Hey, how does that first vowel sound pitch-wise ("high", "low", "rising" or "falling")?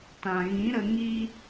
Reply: low